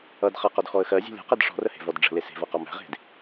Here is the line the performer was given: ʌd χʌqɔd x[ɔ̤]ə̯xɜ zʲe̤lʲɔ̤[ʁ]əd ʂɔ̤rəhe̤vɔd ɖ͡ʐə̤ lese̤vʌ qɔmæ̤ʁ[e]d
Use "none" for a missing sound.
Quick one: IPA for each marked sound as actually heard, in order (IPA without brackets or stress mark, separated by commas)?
ɔ, q, e̤